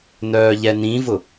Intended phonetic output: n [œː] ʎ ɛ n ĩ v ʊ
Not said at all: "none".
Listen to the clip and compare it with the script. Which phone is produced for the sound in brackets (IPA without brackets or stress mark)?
œː